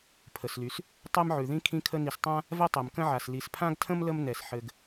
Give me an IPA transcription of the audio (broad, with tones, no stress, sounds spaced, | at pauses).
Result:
pʰ ə˩ s l y˩ s | tˤ ɛ˦ m ʕ ʉ˩ ð ĩ˦ kʰ ĩ˦ kʰ ə˦ n i˨ s tˤ ã˥ | v ɛ˥ tˤ ɛ˩ m k ə̃˦ ʕ a˩ s l i˨ s pʰ ã˥ ɡ tʰ ə̃˥ m l ə˥ m n ɛ˩ s ħ ɘ˨ ɡ